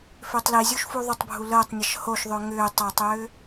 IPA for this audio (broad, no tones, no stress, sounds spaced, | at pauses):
f ʏː tˤ l i zʲ u ʃ f u ðˤ ʏ tˤ bʱ u l əː tˤ nʲ ə ʃ h o ʃ ðˤ ʏː ŋ ʏː tˤ a tˤ ʏː